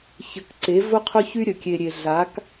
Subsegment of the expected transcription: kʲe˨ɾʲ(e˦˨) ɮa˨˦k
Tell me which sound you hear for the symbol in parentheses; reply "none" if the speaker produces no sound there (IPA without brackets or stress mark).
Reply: e˨